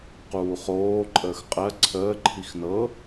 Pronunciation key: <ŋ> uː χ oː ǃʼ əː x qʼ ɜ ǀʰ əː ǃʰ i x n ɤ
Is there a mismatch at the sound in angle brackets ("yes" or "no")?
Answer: yes